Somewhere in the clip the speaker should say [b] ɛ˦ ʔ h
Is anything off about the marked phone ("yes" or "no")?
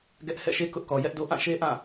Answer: yes